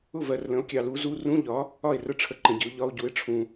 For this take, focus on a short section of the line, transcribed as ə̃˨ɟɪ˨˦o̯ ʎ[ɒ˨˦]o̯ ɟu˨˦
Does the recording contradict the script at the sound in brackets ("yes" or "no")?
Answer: yes